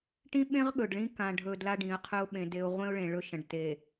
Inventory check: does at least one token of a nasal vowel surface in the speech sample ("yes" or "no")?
yes